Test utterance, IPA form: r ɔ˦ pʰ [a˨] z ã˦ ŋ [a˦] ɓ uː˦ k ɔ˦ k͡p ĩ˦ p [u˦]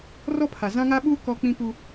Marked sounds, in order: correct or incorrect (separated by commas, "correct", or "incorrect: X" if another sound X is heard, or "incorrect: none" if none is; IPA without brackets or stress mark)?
correct, correct, correct